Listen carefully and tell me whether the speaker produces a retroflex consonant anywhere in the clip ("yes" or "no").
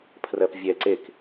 no